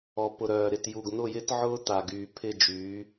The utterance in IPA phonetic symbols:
ɔ˨pʊ˨ɾœː˨ ɾɪ˨tju˨ɡ n̪ʊ˦˨jɪ˦t ʕʊː˦t̪a˨ɡyː˨pʰɪ˦˨ d͡ʒyː˨˦

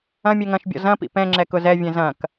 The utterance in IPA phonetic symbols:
ɐ̃ mʲɛŋɐ̃ʃbʲɔ̰ zɐ̃pḭ pɛ̃ ŋ͡ǁɛkʊzɛvʲɛ̃ zɐ̃k

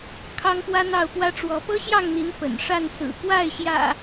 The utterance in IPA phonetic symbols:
kʰɑ˦ŋpwä˦n̪ɑ˥˨ʊ̯ pwä˦ʈ͡ʂwɔ˨˦ pɤ˦ɕjɑ˥˨ŋn̪i˨˦n pə̰˨˩n ʂa˥˨nsɹ̩˨˩ kwa˥˨ɪ̯ɕjä̰˨˩

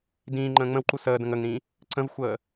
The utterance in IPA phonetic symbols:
dĩːŋ͡ǃə̃ː ŋ͡mə̃wǃu səːdə̃ŋ əŋɾĩ | ǀə̃vxʷəː

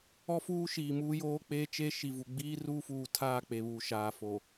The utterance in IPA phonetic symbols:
ɔ˦fuː˦ʃiː˨ muː˦joː˦k͡peː˦ t͡ʃe˦ʃi˨vu˨ ɡ͡biː˦ ruː˦fuː˨tʰaː˦˨ k͡pe˨βuː˨ʃaː˨fo˨

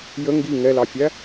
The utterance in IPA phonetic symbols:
jə ŋɡi ŋɛlɑfʲæ

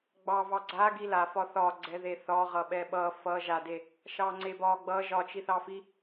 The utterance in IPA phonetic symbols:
ɡ͡bɑvɑ ɡ͡ǀa ɡilafɒ θɒɡ͡ǀɛðe θɒʁʌ ɓɛɓʌ fʌ ʒade | ʃɑŋ͡ǀebɒ ɡ͡bʌ ʒɒ t͡ʃiθɑfi

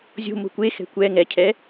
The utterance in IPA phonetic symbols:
zʲo̤mo̤ kʷexɛ̤ kʷɛ ŋɛcʰɛ

